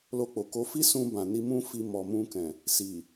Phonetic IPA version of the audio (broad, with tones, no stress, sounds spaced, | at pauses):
l o˧ k͡p o˨ k o˧ f i˦ s ũ˧ b ã˨ n i˧ m ũ˦ f i˧ m ɔ˨ m ũ˧ k ɛ̃˨ | s i˨